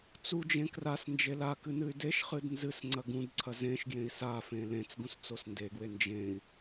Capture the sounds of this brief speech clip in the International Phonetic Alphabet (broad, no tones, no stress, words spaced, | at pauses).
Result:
t͡sud͡ʒẽ kras nd͡ʒelakɨ nɨy̯deʃχɨd nzɨs ŋ͡ǀɐɡũdǀʰɐ zẽʃ ɡjẽi̯safẽ lẽt͡sɡũs t͡sosndeɡwe nd͡ʒẽi̯